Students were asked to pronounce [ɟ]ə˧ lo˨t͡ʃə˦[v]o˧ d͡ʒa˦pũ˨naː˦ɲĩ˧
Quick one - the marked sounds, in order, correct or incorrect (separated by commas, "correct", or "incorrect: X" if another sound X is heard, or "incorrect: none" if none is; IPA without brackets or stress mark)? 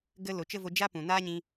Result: incorrect: ɡ, correct